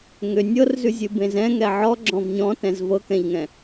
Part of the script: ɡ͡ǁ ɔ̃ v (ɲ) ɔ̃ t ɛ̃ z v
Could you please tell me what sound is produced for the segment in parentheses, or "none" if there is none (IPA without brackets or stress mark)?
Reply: ɲ